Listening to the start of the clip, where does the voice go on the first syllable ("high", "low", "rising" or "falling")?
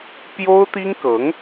high